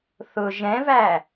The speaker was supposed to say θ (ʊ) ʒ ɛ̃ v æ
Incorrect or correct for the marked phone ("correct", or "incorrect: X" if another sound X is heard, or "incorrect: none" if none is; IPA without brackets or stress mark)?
correct